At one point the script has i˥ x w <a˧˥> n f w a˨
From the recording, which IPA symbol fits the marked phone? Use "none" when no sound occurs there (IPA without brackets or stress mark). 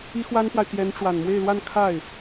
a˥